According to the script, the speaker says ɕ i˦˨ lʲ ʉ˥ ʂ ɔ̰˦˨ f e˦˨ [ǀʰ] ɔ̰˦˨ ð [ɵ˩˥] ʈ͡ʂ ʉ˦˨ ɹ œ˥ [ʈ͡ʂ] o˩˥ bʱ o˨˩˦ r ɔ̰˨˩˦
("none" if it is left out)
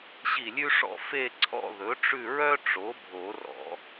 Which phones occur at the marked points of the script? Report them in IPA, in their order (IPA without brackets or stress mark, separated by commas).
ǀʰ, ɵ˩˥, ʈ͡ʂ